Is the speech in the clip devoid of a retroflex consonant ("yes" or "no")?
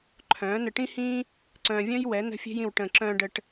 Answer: no